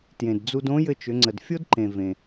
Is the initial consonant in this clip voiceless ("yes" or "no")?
yes